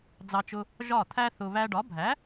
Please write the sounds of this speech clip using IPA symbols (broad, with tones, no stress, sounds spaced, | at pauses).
d͡z ɑ˧ t͡ʃ ʊ˧ | ʒ ɒ˥˩ t̪ʰ æ˥ θ ʊ˧ β æ˧ ɖ ɒ˩˥ bʱ æ˩˥